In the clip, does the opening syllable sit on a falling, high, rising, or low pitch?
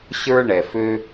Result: high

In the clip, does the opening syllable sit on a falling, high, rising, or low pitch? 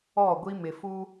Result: falling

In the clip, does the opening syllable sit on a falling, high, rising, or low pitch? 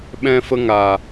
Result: high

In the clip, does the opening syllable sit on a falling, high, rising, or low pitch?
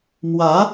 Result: rising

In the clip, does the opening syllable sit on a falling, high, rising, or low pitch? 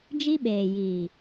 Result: high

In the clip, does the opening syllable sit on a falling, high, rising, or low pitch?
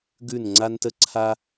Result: falling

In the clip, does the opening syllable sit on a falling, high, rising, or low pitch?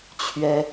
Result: high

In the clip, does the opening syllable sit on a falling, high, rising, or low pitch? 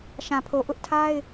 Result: low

